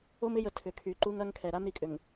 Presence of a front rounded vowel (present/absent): present